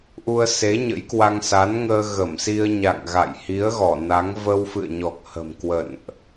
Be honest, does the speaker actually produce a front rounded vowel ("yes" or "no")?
no